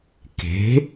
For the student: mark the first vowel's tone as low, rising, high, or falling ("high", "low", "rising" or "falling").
rising